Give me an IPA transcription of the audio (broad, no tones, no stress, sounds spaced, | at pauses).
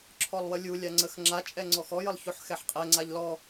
ǁʰ ɔ lˠ w ə lʲ u lʲ a ŋ͡ǀ ə x ŋ͡ǁ a t͡ʃʼ ɛ ŋ͡ǀ ɔ x ɔ j ə lˠ ç o ħ x ɛ ħ qʼ ɛ ŋ͡ǀ a ʎ l ɔ